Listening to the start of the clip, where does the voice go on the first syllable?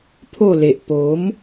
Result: falling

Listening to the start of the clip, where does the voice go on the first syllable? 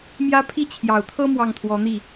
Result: high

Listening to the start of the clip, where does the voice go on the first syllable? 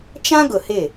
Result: high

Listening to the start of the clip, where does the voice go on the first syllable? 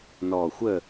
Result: low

